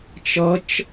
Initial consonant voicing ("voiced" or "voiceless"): voiceless